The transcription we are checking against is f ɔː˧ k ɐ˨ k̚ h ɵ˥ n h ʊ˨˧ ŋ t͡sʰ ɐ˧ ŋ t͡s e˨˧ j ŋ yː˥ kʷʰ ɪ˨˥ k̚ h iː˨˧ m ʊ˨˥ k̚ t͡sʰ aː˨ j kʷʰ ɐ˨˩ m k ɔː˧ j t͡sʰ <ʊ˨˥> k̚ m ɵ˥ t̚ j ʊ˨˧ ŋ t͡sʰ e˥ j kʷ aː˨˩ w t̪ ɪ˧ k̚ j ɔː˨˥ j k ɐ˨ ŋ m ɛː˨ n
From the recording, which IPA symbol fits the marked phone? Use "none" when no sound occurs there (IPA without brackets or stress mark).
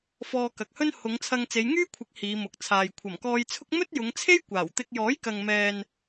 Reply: ʊ˥